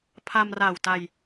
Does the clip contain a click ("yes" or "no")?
no